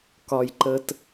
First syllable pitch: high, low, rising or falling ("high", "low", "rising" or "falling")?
low